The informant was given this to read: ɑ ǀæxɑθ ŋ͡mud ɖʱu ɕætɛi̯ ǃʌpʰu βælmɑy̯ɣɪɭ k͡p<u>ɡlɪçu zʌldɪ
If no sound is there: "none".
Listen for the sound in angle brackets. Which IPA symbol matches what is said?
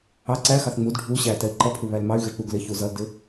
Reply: u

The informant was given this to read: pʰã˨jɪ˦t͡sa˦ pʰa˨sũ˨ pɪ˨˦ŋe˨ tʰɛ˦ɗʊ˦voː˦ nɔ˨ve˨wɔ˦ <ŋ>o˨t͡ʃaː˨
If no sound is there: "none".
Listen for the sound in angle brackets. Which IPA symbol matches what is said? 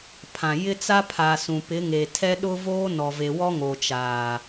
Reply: ŋ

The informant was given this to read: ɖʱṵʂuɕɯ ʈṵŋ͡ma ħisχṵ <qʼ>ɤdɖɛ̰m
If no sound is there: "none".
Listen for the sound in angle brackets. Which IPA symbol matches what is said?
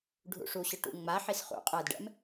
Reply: qʼ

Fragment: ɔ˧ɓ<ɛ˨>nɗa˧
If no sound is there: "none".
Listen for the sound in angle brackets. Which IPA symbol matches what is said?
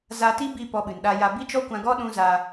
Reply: ɨ˨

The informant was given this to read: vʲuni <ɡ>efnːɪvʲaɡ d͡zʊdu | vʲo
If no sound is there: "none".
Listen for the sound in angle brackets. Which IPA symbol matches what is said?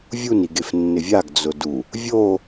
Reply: ɡ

